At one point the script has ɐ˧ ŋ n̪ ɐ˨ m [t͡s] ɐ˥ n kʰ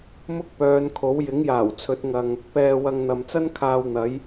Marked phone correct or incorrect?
correct